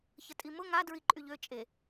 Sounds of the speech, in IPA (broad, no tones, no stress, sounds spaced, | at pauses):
ç ə tʼ i m ʊ ŋ a d ɹ i ǃʼ y ʎ ø t͡ʃʼ e